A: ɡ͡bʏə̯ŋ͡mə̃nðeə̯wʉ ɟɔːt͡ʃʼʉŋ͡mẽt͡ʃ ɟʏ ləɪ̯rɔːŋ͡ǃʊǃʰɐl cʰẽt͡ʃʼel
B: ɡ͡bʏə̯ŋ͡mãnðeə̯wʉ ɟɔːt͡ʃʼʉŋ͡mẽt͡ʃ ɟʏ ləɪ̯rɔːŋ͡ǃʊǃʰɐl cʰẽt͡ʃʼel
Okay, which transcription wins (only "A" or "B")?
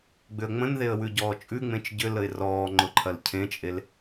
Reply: A